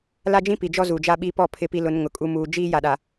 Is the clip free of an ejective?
no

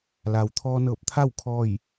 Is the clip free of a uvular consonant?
yes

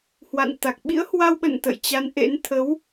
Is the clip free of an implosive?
no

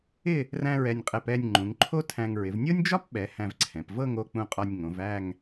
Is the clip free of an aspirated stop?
no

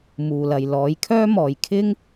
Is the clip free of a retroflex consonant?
yes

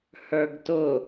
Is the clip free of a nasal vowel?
yes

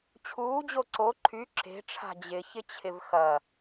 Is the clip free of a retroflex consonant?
no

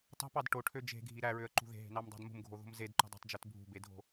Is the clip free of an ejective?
yes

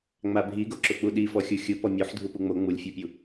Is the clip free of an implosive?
no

